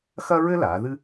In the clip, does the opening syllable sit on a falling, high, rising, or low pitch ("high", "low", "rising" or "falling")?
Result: high